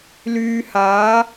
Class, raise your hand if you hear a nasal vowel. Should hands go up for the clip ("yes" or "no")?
no